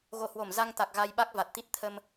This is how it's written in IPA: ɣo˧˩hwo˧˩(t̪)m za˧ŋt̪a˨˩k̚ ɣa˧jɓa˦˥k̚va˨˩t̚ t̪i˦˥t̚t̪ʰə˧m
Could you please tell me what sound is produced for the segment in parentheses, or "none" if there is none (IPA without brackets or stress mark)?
none